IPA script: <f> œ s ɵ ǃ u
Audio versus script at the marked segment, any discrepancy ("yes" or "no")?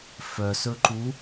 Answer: no